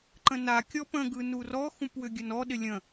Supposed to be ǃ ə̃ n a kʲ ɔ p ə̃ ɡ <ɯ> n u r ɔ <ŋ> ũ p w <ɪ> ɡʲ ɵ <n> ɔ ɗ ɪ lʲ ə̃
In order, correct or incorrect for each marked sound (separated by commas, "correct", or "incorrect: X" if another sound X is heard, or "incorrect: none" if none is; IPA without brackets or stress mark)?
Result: correct, incorrect: x, incorrect: ʏ, correct